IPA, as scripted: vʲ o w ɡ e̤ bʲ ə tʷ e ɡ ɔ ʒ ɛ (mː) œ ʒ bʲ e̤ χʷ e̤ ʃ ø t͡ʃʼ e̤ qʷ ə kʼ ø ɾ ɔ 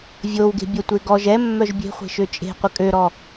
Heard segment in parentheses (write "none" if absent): mː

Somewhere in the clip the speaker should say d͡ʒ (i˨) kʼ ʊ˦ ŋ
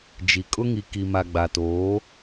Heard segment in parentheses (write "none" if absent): i˨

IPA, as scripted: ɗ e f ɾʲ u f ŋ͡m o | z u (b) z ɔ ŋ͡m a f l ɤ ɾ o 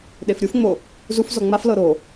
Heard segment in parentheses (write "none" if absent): f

